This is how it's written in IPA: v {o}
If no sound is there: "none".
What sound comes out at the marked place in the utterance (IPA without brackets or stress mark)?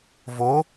o